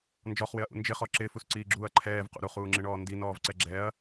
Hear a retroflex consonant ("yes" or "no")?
yes